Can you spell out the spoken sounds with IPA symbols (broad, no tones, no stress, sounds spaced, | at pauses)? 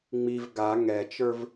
ŋ͡m i v ɡ a ŋ ɛ t͡ʃ ə˞ v